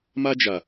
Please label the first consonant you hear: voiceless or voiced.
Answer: voiced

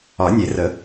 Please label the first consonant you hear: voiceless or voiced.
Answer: voiced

